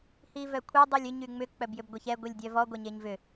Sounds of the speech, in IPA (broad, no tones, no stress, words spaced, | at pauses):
hivœkʷʰe dˤylʲʏ ɲyŋ͡mʏ k͡pœbjʏbɡʷeçɛ ɡʷilʲdʲœvɔ ɡʷɛɲeɲvʏ